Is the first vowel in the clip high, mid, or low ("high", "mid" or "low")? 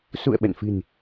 high